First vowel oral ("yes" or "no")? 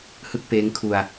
yes